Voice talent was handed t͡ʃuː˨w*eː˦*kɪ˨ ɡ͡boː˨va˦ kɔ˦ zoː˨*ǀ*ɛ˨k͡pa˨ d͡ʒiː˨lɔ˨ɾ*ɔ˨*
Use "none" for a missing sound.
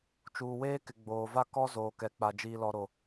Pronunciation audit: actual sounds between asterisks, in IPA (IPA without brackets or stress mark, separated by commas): eː˦, k, o˨